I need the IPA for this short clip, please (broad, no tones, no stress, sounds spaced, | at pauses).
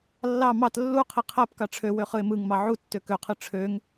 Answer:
lː ɑ m ɑ t lː u qʰ i qʰ æ p k ɑ ʈ͡ʂʰ ø w ø χ ɯ ɪ̯ m ɯ ŋ m ɑ ʕ u tː ø k ø qʰ ɯ ʈ͡ʂʰ ø ŋ